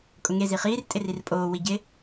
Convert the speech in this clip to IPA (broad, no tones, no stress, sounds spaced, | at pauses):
kʼ ʊ ŋ e z i χ iː r tʼ ɪ r i r pʼ oː w i ɟ ɪ